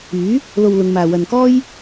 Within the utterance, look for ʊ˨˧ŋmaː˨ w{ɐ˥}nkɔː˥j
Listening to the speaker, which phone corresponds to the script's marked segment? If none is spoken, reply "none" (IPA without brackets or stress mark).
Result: ɐ˨